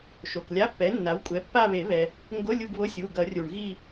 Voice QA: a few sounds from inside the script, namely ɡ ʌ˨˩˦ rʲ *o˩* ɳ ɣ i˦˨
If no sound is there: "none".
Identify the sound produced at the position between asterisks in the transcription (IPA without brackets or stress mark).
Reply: u˩